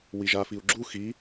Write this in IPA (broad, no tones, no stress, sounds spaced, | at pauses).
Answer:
w i ʒ a f i u̯ ɡ͡ǁ u x i